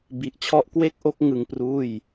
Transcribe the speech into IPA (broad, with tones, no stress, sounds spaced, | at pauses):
b i˨˩ ʔ t͡ɕʰ ɔ˥˩ ʔ k w e˥˩ k̚ ʔ o˥˩ k̚ ŋ ɯ˧ ŋ p r uː˥˩ j